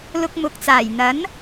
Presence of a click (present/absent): absent